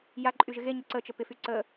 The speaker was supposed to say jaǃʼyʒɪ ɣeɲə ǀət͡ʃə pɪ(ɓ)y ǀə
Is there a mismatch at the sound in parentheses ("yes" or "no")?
yes